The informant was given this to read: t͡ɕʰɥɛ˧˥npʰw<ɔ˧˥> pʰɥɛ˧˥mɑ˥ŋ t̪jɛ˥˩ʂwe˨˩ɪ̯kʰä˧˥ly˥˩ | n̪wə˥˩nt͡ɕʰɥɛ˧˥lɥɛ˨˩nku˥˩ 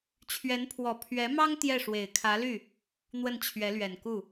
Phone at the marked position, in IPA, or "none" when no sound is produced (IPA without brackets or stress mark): ɔ˨˩